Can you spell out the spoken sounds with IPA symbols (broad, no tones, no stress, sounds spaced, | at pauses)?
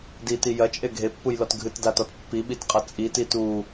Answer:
d i t i j ɐ t͡ʃʼ e ɡʱ e pː u j l ɔ t ɡʱ ɨ t d a t ɔ t pː i ɓ i t qʼ ɐ t͡sʼ i t i t u